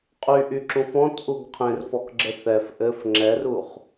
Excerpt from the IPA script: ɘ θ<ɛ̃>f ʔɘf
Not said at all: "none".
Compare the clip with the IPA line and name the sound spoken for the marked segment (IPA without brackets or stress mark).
ɛ